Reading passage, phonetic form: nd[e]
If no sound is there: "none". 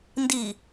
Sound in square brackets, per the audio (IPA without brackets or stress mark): i